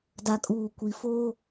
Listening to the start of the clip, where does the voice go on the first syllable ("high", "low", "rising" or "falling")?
low